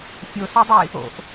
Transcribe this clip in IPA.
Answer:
fʲ o s u dˤ i | o̰ ʔ

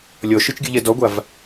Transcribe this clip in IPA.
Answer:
lʲ ɔ ʃ ɯ t͡ʃ ɡʲ ɯ ʎ ɛ d ɔ ɡʷ a v

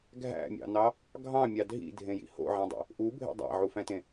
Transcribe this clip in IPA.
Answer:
ɡʱ æ̰ mʲ ɑ̰ n ɑ | ɡʱ ɑ̃ mʲ ɑ dʱ ḭ dʱ ẽ j ḭ h o̰ ʕ æ̃ dˤ ḛ | ʔ u bʱ ḛ dˤ æ̰ ʕ u f æ̃ t ẽ

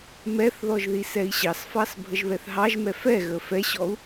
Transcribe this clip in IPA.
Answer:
m ɛ θ ð ɔ ʒ ð i s ɛ i̯ ɕ ɑ s f ɑ s bʱ ə ʒ β ɛ θ ɦ ɑ ʒ m ɛ f ɛ ɣ ə f ɛ ɕ ɔ u̯

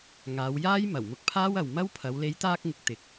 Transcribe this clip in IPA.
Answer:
ŋ aː˨˧ w j aː˥ j m ɐ˨˩ w m ʊ˧ k̚ pʰ aː˥ w ɐ˨ w m ɐ˥ w pʰ ɐ˨˧ w l e˨˧ j t̪ aː˧ k̚ ŋ ɪ˨ k̚ t̪ ɪ˧ k̚

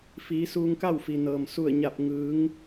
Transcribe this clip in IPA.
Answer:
f iː˩˧ s uː˧ ŋ k a˥˨ w f i˩ n ɤː˩ m s u˧˩ ə̯ ɲ a˧˩ p̚ ŋ ɯː˩˧ ŋ

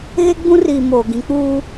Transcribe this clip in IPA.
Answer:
ɣ e˦ ɡ͡b ũ˦ r iː˨ m oː˨ ɡ ĩ˨˦ k͡p uː˦

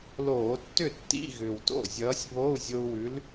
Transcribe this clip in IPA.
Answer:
l oː˧˩˧ tː ʏ˥˩ tː ḭ˧˥˧ ɣ ʏ˨˩ w t o̰˥˩ zʲ ʌː˨˥ sʲ β o˧˥˧ u̯ zʲ o˧ u̯ w ʉ˨˥ l

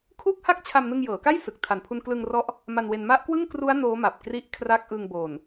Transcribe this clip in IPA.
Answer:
kʰ uː˥˩ k̚ h a˥˩ k̚ t͡ɕʰ a˧ m n ɯ˧ ŋ j ɤː˩˦ k a˥˩ j s ɯ˨˩ k̚ tʰ a˨˩ n pʰ u˧ n k l ɯ˧ ŋ r ɔ˦˥ ʔ | m a˧ n w e˧ n m a˦˥ ʔ k w ɯ˥˩ ŋ k r u˦˥ a̯ n oː˦˥ m a˨˩ p̚ k r i˦˥ ʔ kʰ r a˦˥ k̚ ʔ ɯ˧ ŋ b o˨˩ n

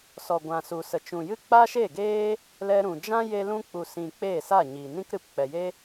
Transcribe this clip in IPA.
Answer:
s ɔ˨ ɡʷ ã˨ s u˨ s ə˨ t͡ʃ ũ˨ j ɨ˦ k͡p a˦ ʃ e˦˨ ɡ eː˦ | l ɛ˧ ɾ ũ˨ d͡ʒ ã˦ j e˧ l ũ˧ k͡p u˨ s ĩ˨ k͡p eː˦˨ s a˦˨ ɲ i˨ n ĩ˦ k ɾ ɨ˧ p k͡p ɛ˨ j e˦

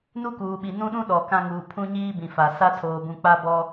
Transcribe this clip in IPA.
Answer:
n u˦ k uː˨ ɓ i˨ n ũ˦ ɗ ũ˦ ɗ ɔ˨ k ã˦ ŋ uː˨ pʰ ũ˦ ɲ iː˦ b ĩ˨ f a˨ s a˦ tʰ oː˨ b ũ˨ k͡p a˦ b ɔ˦

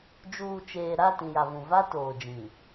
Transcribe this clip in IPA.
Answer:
d͡ʒ uː˨ t͡ʃ eː˨ ɾ a˦˨ t ĩ˨ j a˨ v ũ˨ v a˦ t oː˨ d͡ʒ ĩ˨

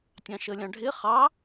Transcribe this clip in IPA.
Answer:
tʲ ɑ̃ ʃ ə lʲ ɑ̃ ɖʱ ɪ χ ɑ

